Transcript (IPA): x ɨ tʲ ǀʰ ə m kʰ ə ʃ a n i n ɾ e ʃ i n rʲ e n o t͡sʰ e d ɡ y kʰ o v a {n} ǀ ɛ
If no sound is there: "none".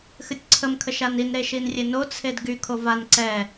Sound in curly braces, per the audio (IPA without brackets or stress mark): n